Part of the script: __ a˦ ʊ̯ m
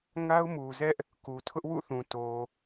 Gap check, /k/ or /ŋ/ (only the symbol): ŋ